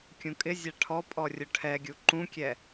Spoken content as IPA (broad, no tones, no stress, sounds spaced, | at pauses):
kʲ ũ kʼ ɪ zʲ a ʈʰ ɔ pʼ ɔ rʲ ʊ ʈʰ ɛ ɡʲ u ǃ ũ kʲ ɛ